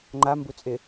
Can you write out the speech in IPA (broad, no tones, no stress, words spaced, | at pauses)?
ŋ͡ǃa mbut͡sʼɪ